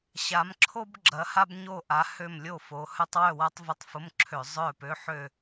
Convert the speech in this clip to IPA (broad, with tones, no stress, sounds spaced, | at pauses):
ɕ a˨˦ m ǁʰ o˥ b ɡ͡ǁ ɐ˨˦ h a˥ b ɲ o˥˨ ʔ a˨˦ h ø˥˨ m lʲ o˥˨ f o˨˦ h œ˥ tˤ w œ˥˨ w a˥ tˤ v ʊ˧˥˧ tˤ f ʊ˧˥˧ m ǁʰ ø˧˩˧ zˤ œ˥˨ p ø˧˥˧ ħ ø˥˨